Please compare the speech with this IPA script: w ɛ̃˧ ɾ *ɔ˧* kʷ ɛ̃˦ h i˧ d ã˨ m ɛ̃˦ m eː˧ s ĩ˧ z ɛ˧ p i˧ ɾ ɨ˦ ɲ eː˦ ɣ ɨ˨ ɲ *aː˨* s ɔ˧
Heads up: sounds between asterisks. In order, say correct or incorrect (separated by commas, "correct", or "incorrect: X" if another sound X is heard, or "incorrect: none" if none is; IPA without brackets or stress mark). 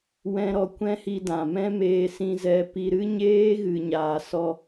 correct, correct